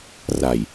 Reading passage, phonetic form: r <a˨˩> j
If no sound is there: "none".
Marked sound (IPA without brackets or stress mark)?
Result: a˨˩